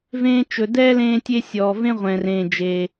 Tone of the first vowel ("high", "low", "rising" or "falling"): high